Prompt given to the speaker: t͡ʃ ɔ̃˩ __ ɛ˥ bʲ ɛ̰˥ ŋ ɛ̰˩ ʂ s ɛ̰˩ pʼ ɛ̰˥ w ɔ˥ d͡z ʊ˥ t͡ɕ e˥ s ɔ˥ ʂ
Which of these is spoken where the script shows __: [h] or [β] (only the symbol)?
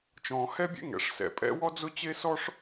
h